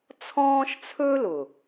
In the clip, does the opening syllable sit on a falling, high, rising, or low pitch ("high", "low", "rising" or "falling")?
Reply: high